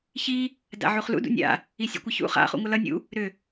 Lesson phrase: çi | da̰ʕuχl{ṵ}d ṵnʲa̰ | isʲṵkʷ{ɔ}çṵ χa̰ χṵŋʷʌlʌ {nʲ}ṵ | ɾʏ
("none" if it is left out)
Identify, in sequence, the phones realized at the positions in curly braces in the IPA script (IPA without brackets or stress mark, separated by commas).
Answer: ṵ, ʌ, nʲ